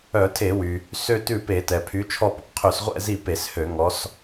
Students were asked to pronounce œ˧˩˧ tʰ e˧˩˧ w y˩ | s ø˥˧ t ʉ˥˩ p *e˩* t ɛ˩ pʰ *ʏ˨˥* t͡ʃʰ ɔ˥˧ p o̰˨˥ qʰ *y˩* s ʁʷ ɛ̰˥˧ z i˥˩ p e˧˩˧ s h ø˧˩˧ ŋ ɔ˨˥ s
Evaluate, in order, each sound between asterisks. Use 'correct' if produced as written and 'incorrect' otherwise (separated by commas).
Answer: incorrect, incorrect, incorrect